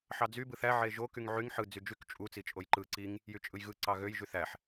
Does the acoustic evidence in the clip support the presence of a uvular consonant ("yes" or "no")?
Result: no